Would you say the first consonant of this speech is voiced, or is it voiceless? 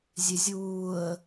voiced